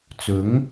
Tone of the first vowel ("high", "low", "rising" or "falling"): rising